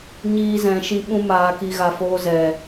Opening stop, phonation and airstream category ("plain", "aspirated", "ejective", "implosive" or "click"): implosive